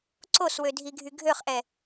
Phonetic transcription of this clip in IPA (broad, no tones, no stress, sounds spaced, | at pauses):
ǀ o s w ø dʱ i ɡʱ y ɡʱ ø χ ʔ ɛ